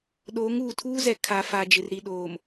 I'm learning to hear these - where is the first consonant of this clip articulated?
tongue tip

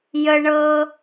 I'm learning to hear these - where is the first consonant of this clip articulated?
palate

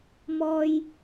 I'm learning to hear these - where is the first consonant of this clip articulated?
lips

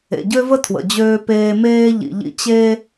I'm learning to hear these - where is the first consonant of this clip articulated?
palate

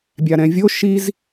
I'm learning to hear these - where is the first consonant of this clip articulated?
lips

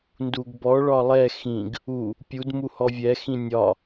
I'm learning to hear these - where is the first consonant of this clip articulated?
tongue tip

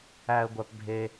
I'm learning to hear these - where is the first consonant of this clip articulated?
velum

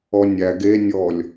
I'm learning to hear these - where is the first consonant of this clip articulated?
tongue tip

